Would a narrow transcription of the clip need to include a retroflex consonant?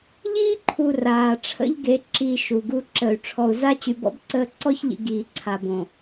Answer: yes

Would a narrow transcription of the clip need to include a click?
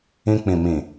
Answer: no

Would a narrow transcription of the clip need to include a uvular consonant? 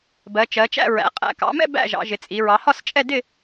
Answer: yes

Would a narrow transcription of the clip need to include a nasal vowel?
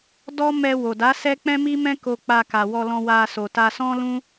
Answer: yes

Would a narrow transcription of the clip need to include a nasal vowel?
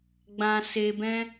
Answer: yes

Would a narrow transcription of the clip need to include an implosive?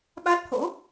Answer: yes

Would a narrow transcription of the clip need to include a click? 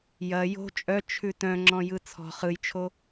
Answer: yes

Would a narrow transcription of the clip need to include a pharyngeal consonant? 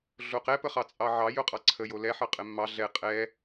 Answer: yes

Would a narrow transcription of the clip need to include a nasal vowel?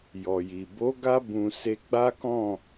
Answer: yes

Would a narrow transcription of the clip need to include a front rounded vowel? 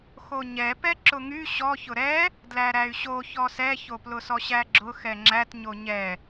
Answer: yes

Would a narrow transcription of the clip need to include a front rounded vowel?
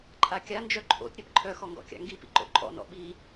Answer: yes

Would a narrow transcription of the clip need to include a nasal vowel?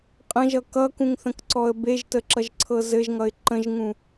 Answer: yes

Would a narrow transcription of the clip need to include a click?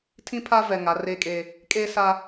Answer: no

